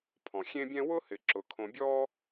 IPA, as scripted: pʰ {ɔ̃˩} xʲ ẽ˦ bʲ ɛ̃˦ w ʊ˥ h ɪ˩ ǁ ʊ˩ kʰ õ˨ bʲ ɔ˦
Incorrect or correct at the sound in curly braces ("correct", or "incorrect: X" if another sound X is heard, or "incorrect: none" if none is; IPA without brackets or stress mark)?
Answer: correct